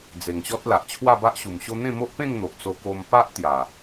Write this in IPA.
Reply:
d͡ze˨˩ŋɕɔ˦t̚la˨ʔ t͡ɕʰwa˥˧ba˦ʔɕu˨˩mɕo˦ n̪ẽ˥˧mo˦ʔpẽ˥˧ŋn̪o˨ʔ t͡so˧ko˧m pa˦ʔ t̪ja˨˩

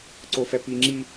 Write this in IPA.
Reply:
ǀofɛpiŋ͡ǁi

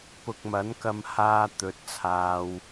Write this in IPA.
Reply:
pʊ˨k̚mɐ˨˥nkɐ˧mhaː˧ t̪ɵ˨˥t̚t͡sʰaː˧w

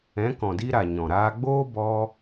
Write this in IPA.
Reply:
ɛ̃˨˦kɔ̃˨di˧ɾa˨ ɲɔ̃˨ɾaː˧ɡ͡boː˦ bɔ˧

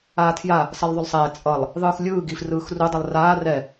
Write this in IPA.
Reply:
aːtʰja | sʌlˠðˤolˠsˤɛː t͡sʼʌlˠ | ðˤɯːxlʲɯː ɡifrɯːxru dˤilˠraː rɛ

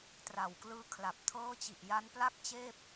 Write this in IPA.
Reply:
tra˨˩wklɯː˦˥kʰla˨˩p̚ tʰɤː˦˥t͡ɕi˨˩ʔ ja˦˥npla˥˩k̚t͡ɕeː˥˩p̚

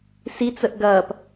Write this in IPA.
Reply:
sit͡səʔ ɡɐːp

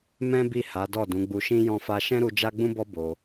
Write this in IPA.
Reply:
mɛ̃˦bi˦˨ ha˨˦dɔ˦˨ dũ˨˦ɡ͡bu˧ʃĩ˦ jɔ̃˦fa˦ ʃɛ̃˦ɾu˧ d͡ʒa˦ɡ͡bũ˦bɔ˦ bo˧

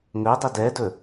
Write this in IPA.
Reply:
ŋɵdˤɪ dɛdɵ

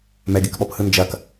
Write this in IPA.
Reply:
mɛɡekɓɔphɯ nd͡ʒɐk

